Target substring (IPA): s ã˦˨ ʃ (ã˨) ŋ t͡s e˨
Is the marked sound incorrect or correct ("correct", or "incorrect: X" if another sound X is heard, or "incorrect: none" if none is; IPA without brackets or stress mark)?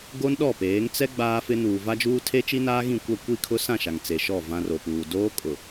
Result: incorrect: a˨